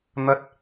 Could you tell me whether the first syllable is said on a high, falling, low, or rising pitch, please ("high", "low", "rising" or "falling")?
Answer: high